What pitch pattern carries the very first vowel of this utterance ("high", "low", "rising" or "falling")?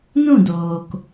falling